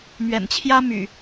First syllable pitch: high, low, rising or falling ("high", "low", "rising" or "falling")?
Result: low